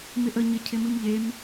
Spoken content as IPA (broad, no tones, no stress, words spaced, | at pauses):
mɪʔə ɲɪ cʰɪmɨmʎem